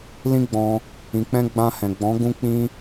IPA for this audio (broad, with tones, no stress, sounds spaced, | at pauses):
l ĩ˦ ɡ͡b ɔ̃˧ | ĩ˨ k͡p ɛ̃˧ ɡ͡b ã˧ h ɛ̃˨ ɡ͡b ɔ̃˨˦ ɡ ũ˦ k͡p ĩ˦